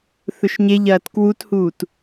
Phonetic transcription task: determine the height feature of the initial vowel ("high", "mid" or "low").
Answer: mid